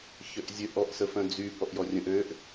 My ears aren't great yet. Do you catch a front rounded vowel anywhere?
yes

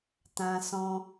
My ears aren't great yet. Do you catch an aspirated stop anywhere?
no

